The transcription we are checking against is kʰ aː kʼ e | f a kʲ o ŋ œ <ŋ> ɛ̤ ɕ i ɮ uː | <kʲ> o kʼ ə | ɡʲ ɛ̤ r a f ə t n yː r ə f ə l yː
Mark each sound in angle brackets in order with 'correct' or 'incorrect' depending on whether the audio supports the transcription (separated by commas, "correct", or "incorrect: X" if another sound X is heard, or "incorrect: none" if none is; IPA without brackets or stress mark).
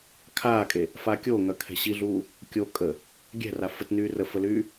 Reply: incorrect: kʰ, correct